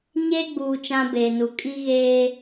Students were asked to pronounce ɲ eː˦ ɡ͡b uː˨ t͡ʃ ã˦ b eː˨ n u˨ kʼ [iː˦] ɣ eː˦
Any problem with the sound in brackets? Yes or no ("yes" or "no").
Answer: yes